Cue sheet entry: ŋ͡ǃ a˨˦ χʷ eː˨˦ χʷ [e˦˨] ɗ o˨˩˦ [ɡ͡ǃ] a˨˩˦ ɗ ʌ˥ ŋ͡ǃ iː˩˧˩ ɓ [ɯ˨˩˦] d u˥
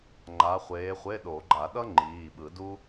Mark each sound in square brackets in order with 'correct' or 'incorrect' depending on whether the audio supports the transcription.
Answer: incorrect: e˧˥˧, correct, correct

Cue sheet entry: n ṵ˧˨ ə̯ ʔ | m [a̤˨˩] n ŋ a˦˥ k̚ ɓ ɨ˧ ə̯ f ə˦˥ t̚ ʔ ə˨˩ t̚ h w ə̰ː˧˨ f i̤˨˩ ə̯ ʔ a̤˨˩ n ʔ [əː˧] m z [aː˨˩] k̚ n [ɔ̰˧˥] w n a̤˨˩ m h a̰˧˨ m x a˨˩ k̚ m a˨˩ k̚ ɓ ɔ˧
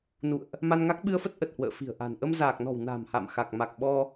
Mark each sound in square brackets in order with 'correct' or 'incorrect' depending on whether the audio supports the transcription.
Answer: incorrect: a˧, incorrect: ə˧, correct, incorrect: ɔ̤˨˩

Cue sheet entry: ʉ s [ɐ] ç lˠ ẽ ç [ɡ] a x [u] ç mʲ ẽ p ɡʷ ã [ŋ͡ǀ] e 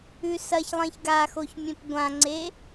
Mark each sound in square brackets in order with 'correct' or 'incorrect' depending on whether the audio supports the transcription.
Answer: correct, correct, incorrect: o, correct

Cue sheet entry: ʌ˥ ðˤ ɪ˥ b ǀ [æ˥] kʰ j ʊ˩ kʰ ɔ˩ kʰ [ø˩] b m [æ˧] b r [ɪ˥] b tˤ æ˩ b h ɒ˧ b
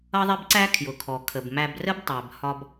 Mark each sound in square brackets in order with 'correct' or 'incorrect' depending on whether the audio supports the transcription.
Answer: correct, incorrect: ə˩, correct, incorrect: ə˥

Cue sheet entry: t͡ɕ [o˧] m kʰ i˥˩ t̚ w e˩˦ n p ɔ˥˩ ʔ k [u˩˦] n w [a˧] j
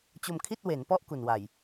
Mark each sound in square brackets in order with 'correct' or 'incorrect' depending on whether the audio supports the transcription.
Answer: correct, incorrect: u˨˩, incorrect: a˨˩

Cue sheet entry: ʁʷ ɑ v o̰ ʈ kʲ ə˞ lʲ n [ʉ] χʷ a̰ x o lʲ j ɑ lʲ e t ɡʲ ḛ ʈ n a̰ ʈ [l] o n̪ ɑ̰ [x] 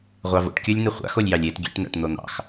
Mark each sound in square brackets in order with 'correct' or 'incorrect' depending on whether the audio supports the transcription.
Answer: incorrect: ɘ, incorrect: n̪, correct

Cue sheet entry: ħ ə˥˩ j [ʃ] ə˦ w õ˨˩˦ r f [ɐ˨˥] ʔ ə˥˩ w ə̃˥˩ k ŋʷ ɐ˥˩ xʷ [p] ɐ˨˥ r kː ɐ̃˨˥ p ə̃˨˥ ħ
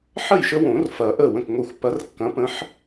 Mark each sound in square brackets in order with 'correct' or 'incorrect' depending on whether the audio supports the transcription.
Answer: correct, incorrect: ɐ˨˩˦, correct

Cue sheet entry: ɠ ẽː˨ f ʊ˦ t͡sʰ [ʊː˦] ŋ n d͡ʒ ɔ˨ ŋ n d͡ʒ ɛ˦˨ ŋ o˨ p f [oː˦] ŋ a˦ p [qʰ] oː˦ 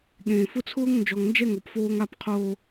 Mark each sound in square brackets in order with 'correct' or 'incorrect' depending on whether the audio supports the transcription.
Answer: correct, correct, correct

